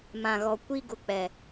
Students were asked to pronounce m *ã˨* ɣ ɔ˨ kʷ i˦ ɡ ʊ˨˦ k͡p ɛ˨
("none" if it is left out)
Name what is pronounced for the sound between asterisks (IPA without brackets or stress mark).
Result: ã˨